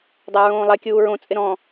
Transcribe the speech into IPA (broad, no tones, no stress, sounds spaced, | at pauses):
dˤ æ ɹ õː lˠ ɛ kʲ uː ɹ õ t͡sʼ ɪ ɾ ɔ̃